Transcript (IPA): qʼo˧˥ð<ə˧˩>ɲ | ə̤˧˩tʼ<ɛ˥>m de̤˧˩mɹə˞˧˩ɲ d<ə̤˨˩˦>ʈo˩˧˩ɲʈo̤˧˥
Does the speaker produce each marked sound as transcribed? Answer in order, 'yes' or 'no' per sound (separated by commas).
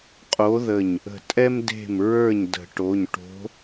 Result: yes, yes, yes